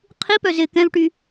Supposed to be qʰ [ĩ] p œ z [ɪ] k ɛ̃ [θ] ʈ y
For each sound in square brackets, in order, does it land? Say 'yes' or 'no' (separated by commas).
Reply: no, yes, no